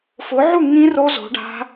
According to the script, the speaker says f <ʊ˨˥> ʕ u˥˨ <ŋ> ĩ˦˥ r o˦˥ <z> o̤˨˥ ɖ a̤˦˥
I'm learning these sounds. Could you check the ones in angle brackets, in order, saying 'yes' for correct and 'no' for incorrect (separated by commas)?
yes, yes, yes